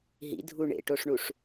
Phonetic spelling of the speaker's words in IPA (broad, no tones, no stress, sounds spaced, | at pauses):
ɦ ḭ dʱ u ɳ ḛ ʈ o ʂ ɳ u ʂ